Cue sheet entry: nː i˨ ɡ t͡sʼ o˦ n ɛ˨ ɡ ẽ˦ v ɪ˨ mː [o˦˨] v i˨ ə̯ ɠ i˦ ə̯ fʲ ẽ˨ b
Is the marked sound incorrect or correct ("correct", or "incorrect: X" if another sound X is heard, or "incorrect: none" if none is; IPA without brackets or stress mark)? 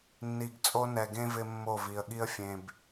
correct